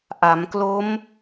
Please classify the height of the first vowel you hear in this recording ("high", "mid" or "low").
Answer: low